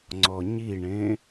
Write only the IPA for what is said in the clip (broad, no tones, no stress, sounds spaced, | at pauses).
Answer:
ŋ͡ǀ ɔ ɲ i ɳ ẽ